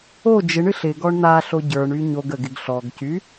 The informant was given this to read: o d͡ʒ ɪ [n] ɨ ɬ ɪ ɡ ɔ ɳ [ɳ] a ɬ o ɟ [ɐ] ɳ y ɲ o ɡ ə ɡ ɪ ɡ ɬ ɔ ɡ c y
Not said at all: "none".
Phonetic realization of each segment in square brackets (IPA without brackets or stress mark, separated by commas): ɳ, n̪, ə˞